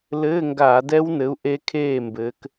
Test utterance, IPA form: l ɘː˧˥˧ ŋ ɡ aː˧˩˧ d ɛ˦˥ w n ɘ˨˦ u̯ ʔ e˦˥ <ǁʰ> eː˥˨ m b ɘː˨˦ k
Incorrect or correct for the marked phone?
incorrect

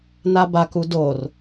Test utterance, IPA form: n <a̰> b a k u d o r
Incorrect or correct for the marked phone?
incorrect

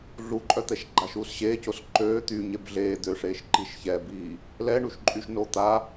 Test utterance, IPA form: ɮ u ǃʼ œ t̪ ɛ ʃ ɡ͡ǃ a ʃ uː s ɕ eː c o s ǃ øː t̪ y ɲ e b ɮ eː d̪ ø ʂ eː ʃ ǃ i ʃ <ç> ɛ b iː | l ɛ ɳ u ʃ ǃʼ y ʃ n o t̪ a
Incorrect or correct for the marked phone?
correct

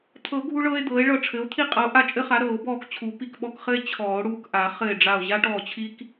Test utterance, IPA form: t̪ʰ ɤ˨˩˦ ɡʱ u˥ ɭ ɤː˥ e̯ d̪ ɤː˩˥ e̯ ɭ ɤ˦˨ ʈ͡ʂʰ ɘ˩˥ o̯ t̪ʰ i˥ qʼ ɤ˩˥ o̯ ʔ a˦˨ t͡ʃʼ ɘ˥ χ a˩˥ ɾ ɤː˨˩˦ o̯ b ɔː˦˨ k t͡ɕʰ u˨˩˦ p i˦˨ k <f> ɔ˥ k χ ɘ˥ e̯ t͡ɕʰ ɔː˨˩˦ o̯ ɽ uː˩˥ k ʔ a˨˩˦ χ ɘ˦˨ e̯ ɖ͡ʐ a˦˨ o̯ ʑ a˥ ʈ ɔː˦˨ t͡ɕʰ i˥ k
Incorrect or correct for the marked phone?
incorrect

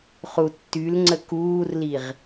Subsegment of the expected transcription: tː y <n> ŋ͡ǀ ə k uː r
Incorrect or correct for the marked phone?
incorrect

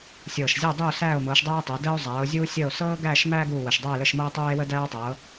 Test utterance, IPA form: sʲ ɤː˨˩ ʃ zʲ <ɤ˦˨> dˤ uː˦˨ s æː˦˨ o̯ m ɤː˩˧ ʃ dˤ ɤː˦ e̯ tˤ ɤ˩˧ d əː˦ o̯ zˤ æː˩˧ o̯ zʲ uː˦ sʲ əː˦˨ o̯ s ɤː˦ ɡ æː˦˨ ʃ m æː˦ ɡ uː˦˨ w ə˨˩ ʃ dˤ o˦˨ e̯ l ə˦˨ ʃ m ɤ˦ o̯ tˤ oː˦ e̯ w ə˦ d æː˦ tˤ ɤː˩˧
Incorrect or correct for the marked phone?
correct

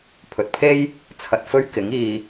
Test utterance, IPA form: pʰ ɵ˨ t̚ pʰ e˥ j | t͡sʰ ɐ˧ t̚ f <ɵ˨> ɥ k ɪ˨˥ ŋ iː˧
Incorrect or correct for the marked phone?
incorrect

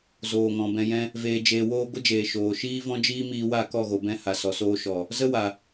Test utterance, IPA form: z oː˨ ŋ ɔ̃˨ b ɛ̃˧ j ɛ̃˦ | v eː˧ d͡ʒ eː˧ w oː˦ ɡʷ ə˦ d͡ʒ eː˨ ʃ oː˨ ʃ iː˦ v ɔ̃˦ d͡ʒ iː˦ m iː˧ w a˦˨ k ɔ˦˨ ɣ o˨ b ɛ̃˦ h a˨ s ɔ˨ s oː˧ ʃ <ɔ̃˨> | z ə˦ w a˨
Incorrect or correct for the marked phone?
incorrect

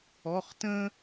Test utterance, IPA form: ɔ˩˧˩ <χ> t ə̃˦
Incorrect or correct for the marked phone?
correct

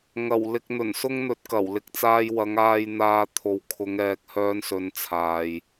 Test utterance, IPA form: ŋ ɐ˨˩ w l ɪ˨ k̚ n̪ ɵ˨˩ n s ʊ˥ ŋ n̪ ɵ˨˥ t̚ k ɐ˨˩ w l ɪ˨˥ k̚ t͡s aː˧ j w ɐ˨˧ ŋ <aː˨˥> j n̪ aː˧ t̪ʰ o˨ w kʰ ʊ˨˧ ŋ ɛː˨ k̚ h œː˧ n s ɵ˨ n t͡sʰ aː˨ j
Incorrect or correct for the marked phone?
incorrect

